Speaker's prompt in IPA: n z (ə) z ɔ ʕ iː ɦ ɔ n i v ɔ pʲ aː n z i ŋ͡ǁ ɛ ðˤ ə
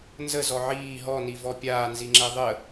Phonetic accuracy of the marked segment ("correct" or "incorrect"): correct